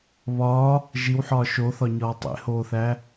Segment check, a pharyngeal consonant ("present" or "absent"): present